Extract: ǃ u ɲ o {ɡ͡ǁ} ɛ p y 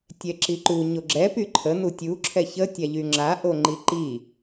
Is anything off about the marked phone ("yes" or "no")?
no